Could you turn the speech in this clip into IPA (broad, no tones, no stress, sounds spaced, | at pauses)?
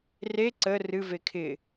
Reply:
r e ǀ ə r ɨ v e kʰ ɪ